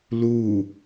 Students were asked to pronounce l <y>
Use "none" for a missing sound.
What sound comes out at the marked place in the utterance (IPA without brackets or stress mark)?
u